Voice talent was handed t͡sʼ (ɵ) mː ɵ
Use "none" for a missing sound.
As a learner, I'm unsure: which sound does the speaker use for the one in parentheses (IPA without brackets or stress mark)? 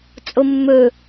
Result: o